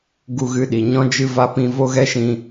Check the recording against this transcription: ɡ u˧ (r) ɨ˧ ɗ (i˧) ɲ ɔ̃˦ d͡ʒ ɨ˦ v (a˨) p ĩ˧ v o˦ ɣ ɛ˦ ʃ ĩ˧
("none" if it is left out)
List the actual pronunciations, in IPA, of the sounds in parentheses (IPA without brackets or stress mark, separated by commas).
ɣ, i˨, a˦